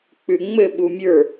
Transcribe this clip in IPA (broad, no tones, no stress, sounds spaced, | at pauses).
k͡p ʉ ŋ͡m ɘ ɓ u mʲ ə˞